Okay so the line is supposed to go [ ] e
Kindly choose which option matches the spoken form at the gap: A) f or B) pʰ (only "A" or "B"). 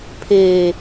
B